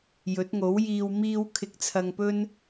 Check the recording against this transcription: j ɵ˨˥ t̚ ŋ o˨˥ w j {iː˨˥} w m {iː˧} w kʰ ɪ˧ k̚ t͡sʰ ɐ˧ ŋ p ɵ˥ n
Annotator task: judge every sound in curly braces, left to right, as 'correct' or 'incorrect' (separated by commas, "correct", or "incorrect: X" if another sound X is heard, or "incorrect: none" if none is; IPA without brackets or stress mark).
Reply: incorrect: iː˧, correct